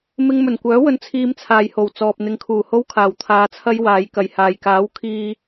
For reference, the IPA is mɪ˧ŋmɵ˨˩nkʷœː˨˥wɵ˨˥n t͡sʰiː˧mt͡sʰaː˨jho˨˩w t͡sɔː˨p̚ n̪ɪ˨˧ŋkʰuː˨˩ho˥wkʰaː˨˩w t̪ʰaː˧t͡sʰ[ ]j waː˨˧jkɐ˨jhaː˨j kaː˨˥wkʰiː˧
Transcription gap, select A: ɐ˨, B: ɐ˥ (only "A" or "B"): B